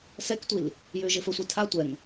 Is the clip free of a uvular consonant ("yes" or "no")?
yes